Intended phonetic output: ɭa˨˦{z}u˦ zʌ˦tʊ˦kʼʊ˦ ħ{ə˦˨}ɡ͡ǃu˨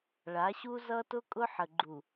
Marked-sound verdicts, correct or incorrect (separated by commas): incorrect, incorrect